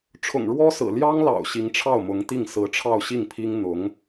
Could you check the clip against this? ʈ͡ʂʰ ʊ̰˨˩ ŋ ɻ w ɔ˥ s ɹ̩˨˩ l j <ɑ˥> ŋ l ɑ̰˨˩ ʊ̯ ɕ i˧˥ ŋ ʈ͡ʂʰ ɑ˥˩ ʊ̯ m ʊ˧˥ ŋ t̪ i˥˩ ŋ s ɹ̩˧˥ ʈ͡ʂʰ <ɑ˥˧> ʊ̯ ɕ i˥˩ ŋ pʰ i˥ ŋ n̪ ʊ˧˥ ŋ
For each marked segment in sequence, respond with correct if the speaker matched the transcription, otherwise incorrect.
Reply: correct, correct

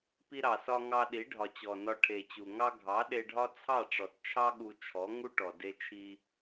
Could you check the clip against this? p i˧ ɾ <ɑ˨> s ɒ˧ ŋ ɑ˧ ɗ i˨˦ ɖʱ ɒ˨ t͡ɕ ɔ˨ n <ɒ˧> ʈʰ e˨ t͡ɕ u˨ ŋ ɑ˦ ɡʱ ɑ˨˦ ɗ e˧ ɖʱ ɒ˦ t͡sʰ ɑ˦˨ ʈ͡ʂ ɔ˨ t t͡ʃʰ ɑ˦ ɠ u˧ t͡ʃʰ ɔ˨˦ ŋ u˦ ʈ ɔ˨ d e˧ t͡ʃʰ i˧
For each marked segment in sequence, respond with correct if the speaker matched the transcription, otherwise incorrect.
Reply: correct, correct

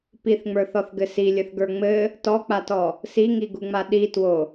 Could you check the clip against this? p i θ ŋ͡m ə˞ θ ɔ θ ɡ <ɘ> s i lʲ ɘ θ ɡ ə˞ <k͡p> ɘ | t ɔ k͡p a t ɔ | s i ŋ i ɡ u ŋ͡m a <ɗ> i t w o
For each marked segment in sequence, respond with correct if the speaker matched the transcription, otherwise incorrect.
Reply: correct, incorrect: ŋ͡m, correct

